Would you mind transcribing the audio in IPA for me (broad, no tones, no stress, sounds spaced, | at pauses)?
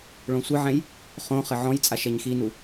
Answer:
ɭ õ sʷ ɨ ʕ ɛ̃ j | χ õ χ ɘ ʕ ɔ̃ j t͡sʼ a ʃ ɛ ɲ x i n u